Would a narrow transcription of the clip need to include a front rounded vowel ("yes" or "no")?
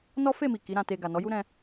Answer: no